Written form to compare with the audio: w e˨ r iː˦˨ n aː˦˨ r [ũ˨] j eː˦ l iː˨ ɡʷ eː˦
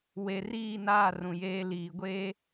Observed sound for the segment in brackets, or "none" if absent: ũ˨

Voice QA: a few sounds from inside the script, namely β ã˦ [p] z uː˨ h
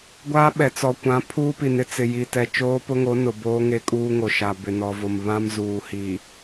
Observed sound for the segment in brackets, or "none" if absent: m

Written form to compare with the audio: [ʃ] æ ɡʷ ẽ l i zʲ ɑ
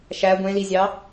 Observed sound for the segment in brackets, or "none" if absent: ʃ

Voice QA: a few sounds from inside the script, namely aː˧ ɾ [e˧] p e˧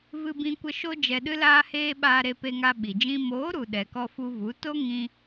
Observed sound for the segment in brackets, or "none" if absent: e˧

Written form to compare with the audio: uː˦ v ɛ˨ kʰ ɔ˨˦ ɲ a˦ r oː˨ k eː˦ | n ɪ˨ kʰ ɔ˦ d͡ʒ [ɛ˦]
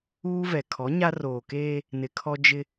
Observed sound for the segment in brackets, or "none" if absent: ɪ˦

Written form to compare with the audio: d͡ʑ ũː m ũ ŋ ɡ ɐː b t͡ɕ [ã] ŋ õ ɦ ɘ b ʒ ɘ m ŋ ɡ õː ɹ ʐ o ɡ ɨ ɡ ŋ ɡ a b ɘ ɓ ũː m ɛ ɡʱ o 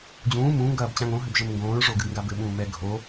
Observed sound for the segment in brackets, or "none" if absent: ã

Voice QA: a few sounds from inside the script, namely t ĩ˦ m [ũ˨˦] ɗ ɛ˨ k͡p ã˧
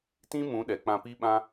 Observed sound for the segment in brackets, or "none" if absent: ũ˨˦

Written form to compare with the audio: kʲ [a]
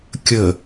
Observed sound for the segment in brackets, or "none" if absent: ə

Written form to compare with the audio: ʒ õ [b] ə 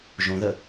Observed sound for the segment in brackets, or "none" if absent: ð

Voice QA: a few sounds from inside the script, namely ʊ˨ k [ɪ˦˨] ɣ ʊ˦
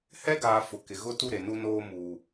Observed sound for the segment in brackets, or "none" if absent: ɪ˨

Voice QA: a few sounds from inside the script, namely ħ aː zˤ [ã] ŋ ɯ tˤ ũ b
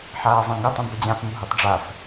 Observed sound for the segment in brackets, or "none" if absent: ã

